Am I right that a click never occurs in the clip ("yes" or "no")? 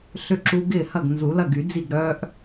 no